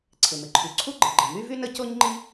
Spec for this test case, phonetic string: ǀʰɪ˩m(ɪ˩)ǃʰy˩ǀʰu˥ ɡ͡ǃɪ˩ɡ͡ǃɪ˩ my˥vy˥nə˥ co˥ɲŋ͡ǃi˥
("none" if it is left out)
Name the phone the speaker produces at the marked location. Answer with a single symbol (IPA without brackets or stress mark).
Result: ɪ˩